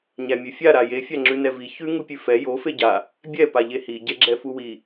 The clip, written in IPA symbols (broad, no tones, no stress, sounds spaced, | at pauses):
ɲ æ mʲ ʉ fʲ a ɾ a j e fʲ a ŋ͡ǁ ʉ n ɛ v i ç ʉ ŋ u pʲ ʉ f ɛ j o f e ɟ a | bʲ ɛ p a ʎ e h i ɟ ɛ ɡ͡ǁ ɛ f u w i